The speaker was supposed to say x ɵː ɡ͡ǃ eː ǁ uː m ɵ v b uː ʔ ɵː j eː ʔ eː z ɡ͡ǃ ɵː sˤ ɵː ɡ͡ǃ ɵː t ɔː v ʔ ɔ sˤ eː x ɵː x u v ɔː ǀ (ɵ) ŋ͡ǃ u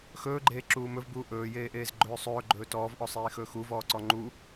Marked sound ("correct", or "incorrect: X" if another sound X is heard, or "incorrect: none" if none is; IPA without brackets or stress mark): incorrect: ɔ